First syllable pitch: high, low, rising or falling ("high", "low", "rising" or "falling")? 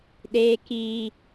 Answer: low